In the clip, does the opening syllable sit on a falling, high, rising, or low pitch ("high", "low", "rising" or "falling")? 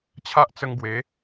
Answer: high